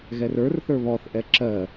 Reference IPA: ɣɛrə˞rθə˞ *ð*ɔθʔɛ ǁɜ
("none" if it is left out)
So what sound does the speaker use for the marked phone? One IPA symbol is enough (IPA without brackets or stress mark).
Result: β